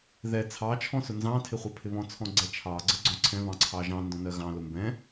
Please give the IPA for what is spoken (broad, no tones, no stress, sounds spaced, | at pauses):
ð ɛ t͡sʰ ɑ t͡ʃʰ ɔ̃ s ʊ n z ɑ̃ tʰ ɪ χʷ ɜ pʰ ɪ β ɔ̃ t͡sʰ ɔ̃ ɡ͡ǀ ɛ t͡ʃʰ ɑ ɡ͡ǀ ə ɡ͡ǀ ɔ̃ ǀʰ ɛ̃ β ɑ̃ ǀʰ ɑ ʒ ɑ̃ n d ɔ̃ n ɜ ɣ ɑ̃ l ʊ m b ɛ̃